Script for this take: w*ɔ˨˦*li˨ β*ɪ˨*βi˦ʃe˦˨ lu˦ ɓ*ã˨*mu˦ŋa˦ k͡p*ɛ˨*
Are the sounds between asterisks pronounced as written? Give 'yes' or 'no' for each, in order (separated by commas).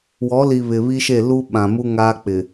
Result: yes, yes, yes, no